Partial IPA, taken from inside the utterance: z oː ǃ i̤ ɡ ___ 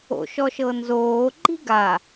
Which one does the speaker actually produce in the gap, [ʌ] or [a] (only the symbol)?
a